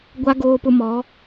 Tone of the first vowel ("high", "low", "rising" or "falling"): high